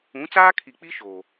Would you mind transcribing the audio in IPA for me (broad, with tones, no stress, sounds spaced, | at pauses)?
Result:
ũ˨˦ t͡s aː˦ kʰ i˨ k͡p i˦ ʃ oː˨